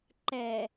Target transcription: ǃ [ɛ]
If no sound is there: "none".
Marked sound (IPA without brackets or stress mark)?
ɛ